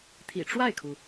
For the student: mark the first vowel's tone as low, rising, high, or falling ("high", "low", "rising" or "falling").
low